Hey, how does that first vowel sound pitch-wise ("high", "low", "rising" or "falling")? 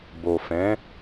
low